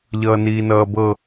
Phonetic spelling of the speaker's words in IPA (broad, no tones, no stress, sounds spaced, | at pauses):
ʎ ʌː n iː n ʌː b ɤ